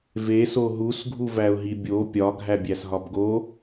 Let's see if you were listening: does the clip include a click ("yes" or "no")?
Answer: no